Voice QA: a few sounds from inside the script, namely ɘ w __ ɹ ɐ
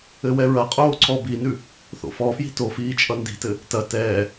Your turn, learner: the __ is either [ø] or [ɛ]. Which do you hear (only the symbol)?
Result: ɛ